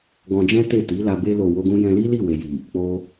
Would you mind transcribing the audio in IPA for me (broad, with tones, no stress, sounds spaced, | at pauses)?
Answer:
ɡ ɔ̃˧ d͡ʒ ɛ̃˦ t e˦˨ t i˨˦ l a˧ b e˧ l o˨ w o˧ ɡ ũ˧ j ɛ̃˧ l i˦ l i˦˨ w e˨ j i˨ | k͡p o˧